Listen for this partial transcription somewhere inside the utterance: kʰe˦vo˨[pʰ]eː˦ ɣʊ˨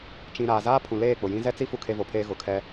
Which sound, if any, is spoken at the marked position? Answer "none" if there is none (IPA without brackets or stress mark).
pʰ